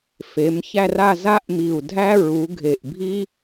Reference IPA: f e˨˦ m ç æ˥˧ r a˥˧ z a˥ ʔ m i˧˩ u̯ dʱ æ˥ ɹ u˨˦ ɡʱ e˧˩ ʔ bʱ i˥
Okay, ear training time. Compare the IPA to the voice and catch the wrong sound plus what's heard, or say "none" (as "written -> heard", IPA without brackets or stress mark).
none